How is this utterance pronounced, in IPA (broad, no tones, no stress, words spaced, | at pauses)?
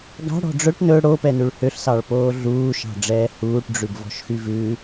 ɡɑ̤ɽɔ̤ ɖ͡ʐɵʈ nɵ ɽopɛnʉɭ høɬsɑɭpoː ɮuːʃɑ̤ɖ͡ʐɛː huːʈɖ͡ʐʉbvɔ̤ʃxy vʉ